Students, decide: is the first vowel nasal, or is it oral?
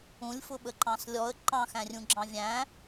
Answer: nasal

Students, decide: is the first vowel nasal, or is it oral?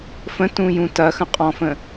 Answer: nasal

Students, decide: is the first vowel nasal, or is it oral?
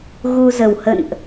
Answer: oral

